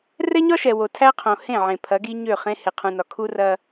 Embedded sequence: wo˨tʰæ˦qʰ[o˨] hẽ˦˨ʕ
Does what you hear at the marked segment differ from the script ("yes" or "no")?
yes